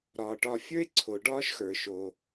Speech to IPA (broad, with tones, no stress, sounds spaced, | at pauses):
ɾ ɒː˩ ʈ ɒː˨ fʲ ə˞˥ e̯ ǀʰ o˩ ɖ ɒː˦ ʃ x ə˞˩ ʃ o˩